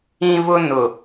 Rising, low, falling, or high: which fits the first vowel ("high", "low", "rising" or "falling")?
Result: high